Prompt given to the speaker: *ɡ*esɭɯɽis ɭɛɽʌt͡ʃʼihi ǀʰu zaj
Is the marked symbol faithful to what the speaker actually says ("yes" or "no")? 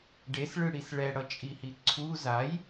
no